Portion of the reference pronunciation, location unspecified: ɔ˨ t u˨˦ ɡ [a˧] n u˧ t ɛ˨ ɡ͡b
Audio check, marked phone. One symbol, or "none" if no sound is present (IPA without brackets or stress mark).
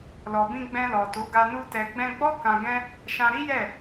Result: a˧